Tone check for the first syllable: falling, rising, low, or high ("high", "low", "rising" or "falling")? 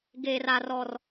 high